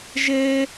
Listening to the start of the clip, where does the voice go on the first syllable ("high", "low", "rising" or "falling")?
high